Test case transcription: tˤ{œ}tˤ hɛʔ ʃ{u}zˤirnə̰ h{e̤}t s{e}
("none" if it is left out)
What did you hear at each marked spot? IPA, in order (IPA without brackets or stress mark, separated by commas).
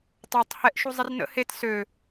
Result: œ, u, e, ø